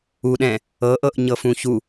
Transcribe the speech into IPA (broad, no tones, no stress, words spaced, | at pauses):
uɗɛ̃ | ɤʔɤʔ ɲɤfũçu